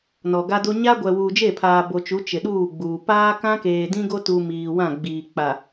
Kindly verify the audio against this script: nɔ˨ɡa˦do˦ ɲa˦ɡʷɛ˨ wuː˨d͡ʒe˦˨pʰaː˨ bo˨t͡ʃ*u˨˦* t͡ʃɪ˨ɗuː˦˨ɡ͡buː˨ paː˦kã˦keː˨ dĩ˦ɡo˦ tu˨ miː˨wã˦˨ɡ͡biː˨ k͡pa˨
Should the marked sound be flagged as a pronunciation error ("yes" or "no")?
no